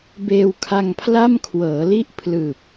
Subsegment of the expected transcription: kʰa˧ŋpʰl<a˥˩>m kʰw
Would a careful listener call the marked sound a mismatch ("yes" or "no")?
no